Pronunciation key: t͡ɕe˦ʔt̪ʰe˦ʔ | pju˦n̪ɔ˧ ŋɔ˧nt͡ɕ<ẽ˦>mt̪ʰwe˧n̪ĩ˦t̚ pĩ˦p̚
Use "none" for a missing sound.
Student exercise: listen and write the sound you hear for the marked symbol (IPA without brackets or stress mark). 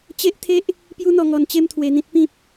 e˦